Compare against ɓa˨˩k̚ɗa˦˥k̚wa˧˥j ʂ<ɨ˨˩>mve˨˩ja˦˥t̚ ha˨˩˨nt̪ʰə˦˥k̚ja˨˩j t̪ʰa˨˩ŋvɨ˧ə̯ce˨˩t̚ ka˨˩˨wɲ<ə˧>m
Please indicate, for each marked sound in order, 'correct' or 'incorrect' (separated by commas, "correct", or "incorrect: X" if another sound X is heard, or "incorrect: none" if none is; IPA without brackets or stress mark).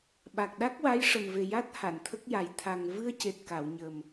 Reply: incorrect: ə˨˩, incorrect: ə˨˩